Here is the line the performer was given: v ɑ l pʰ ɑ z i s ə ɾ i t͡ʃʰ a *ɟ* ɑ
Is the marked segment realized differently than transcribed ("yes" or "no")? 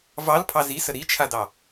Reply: yes